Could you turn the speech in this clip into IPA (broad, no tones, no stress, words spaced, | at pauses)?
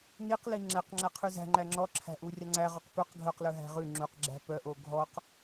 niqli ŋ͡ǁæqŋ͡ǁæqʰʉ zæ̤ ŋ͡ǃæŋ͡ǁɔǁʰæ̤ ʔurʲɑŋ͡ǀæʁɔq pœq ɡʱœqlœ ɦæ̤ʁʉ ŋ͡ǁuqɡ͡ǁæ̤ pœʔo ɡʱɔq